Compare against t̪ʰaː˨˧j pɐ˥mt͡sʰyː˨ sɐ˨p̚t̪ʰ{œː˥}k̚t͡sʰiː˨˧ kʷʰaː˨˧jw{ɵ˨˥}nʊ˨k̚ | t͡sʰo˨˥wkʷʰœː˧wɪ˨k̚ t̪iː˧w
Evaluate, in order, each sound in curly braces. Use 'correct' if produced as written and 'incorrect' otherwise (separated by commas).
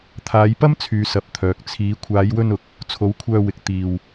incorrect, incorrect